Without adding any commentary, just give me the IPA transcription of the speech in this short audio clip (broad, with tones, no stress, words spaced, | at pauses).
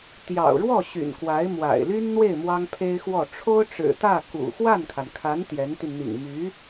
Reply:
t̪jɑ̰˨˩ʊ̯ɻwɔ˥˩ ɕy̰˨˩nkwa˧˥ɪ̯mwa̰˨˩ɪ̯ ly˥nn̪we˥˩ɪ̯ mwɑ˥ŋpʰe˥ɪ̯xwɔ˥˩ ʈ͡ʂʰo˥ʊ̯ʈ͡ʂɻ̩˨˩t̪ä˥˩ kṵ˨˩ xwa˥˩nkʰa˩nkʰa˧˥n t̪jɛ˧˥nt̪y˧n n̪ḭ˨˩ŋmy˧˥